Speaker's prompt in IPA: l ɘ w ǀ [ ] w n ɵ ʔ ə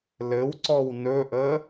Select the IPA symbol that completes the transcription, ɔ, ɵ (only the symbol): ɔ